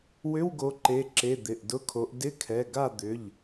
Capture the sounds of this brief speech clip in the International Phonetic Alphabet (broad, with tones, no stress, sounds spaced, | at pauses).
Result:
w ʏ˧˥˧ w ɡ o˨˦ ǃ e˩˧˩ ǁ e˩˧˩ d̪ ɪ˩˧˩ ʔ d ʊ˧˥˧ kʰ o˨˦ ʔ d ɪ˧˥˧ kʰ ɛ˩˧˩ ɡ a˥˨ d̪ ʏ˩˧˩ ʎ